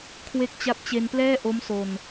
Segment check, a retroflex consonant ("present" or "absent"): absent